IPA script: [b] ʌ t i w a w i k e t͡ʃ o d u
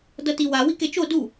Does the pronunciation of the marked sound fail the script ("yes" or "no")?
yes